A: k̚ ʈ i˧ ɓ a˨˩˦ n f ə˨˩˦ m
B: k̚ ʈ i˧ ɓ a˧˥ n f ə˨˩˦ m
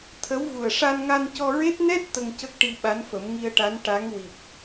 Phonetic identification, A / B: B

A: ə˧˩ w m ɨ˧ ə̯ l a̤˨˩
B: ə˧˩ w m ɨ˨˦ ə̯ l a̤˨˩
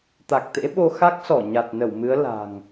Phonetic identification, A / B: B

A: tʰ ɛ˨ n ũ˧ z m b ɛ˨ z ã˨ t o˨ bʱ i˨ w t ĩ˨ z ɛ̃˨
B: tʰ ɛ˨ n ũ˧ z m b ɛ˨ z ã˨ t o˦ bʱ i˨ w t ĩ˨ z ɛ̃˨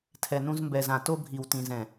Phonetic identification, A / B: B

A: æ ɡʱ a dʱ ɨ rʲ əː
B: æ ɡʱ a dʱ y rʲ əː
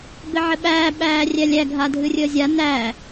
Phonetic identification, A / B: A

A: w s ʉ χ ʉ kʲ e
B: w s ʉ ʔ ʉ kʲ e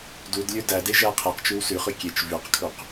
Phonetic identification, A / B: A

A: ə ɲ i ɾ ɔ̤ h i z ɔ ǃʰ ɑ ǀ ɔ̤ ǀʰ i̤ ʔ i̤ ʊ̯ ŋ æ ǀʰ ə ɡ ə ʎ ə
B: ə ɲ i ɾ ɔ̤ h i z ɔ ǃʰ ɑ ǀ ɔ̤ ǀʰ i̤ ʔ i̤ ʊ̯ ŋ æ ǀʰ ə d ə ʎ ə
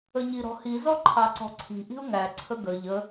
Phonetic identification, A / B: A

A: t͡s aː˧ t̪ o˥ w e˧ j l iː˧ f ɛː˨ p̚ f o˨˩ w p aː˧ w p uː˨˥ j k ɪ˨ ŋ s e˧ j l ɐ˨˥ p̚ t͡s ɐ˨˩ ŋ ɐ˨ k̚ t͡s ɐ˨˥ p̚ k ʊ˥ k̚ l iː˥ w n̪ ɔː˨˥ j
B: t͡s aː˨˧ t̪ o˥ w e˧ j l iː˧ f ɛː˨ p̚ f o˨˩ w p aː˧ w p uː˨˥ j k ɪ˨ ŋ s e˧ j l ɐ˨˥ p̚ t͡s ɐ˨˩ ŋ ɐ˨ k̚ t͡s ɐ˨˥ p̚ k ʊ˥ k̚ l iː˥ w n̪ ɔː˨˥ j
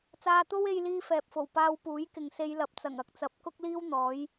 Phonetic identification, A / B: A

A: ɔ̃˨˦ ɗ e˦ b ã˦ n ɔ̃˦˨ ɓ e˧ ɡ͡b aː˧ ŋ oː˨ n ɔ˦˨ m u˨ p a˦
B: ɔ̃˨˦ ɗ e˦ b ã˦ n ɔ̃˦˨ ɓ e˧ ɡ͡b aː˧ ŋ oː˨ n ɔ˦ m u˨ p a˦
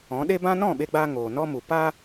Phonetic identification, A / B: B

